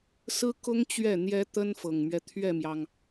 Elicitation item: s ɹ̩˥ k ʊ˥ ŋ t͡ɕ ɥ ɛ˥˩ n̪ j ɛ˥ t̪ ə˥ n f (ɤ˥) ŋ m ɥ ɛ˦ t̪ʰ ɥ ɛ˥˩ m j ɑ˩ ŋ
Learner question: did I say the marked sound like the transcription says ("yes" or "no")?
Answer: no